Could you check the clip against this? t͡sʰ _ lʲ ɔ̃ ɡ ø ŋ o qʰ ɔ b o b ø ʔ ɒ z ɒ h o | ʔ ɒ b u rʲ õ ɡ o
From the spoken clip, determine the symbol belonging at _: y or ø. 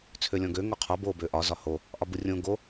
ø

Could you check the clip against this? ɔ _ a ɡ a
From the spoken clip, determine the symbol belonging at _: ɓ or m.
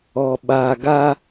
ɓ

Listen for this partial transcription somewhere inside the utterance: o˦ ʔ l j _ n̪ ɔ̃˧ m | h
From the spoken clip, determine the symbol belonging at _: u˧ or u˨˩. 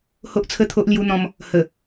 u˧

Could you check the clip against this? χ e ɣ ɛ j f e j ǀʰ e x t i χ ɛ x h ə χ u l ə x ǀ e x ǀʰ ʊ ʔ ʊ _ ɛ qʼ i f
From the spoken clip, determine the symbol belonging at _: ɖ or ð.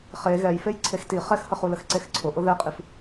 ð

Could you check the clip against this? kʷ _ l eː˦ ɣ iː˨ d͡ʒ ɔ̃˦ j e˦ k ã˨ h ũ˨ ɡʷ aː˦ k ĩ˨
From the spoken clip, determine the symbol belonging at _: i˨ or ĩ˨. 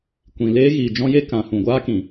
ĩ˨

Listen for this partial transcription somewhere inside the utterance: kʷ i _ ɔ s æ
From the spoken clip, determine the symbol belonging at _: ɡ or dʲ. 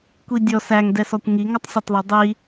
dʲ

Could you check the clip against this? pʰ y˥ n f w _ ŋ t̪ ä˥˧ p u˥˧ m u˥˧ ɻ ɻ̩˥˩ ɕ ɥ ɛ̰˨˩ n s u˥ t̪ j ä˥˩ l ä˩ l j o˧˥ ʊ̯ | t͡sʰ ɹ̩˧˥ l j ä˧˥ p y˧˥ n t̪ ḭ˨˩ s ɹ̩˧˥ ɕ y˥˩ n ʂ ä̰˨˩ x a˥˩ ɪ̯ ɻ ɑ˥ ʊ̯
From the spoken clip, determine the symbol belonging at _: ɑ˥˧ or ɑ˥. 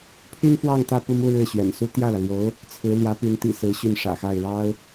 ɑ˥˧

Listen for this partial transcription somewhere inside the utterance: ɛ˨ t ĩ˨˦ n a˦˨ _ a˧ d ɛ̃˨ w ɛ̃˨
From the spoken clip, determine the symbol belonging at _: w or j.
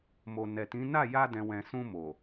j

